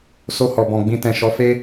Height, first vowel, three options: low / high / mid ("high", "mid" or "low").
mid